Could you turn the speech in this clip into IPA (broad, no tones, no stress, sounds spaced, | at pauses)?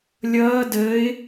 lʲ ʌː d ə ɪ̯